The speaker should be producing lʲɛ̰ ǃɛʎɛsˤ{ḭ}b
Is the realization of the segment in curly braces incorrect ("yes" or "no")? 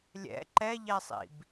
no